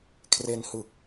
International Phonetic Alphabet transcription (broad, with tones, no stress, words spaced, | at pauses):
kʰre˧nhɯ˨˩k̚